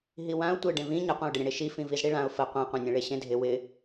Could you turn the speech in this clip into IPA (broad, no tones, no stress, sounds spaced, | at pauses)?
ɦ i w ã ʊ̯ tʷ e ɖ ẽ v ĩ ɲ ə qʷ ã ʊ̯ ɖ ɪ ɾʲ ə̃ ɽ e ʃ i f ĩ v i z ɽ i ɭ ã ʊ̯ f ə qʷ ẽ qʷ ẽ nʲ ẽ ɭ e ɕ ẽ dʱ ɪ w ɪ